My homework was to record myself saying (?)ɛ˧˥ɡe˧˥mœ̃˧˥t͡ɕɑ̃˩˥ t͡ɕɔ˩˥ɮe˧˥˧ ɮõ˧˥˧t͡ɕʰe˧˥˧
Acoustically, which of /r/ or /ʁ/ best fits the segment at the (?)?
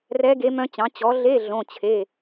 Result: r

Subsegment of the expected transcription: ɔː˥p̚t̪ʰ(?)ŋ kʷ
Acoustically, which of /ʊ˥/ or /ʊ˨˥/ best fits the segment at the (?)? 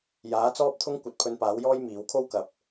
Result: ʊ˥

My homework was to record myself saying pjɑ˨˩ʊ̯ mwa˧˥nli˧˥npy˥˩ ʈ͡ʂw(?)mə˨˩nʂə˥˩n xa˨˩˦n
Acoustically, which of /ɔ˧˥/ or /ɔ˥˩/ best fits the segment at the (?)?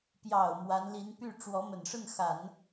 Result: ɔ˧˥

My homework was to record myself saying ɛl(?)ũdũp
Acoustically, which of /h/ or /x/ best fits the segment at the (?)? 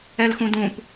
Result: x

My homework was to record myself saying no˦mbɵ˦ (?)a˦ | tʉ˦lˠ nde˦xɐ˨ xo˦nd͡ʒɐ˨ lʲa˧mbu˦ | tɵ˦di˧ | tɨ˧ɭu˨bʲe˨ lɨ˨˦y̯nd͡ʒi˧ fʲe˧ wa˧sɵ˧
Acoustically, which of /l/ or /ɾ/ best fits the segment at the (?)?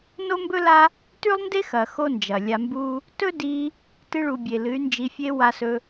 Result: l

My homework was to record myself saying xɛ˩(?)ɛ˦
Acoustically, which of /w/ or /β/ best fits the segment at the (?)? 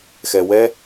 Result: w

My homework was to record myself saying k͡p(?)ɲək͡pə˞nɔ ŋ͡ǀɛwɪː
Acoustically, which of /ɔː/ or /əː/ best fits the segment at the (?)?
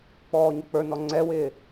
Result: ɔː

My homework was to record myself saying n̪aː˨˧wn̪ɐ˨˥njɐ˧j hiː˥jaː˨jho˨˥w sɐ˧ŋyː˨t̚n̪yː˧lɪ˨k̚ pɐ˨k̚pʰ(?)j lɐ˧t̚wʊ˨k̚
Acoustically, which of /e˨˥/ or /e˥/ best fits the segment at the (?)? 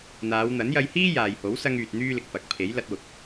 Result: e˨˥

